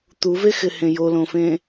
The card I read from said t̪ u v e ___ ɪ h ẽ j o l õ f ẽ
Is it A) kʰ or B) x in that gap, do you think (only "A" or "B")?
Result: B